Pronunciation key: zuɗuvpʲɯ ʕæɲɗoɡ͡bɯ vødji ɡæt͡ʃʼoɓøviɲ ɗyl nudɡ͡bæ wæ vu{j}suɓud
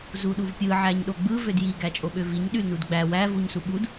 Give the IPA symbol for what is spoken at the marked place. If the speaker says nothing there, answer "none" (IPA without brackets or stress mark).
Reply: ɲ